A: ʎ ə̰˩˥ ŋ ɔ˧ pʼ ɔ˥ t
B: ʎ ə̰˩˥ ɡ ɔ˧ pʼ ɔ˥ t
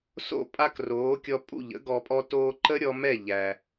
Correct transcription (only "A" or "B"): B